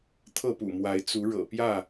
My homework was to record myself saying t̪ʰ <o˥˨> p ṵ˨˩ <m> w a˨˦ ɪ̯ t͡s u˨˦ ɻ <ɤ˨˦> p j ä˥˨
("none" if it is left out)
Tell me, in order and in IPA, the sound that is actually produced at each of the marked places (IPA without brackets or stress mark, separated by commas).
ɤ˥˨, m, ɤ̰˨˩